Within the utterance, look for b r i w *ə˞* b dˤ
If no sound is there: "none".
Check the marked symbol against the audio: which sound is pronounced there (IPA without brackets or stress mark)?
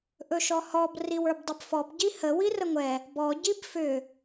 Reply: ə˞